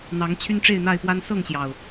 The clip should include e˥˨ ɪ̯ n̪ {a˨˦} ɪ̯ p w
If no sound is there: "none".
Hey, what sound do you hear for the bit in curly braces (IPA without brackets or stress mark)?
a˥˨